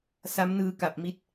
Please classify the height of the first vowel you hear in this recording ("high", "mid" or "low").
low